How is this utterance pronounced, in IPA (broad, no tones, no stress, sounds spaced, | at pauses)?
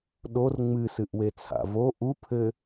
ɗ o r ŋ͡m ɨ s ɨ ʔ w e t͡sʰ a̰ v o ʔ u pʰ ɘ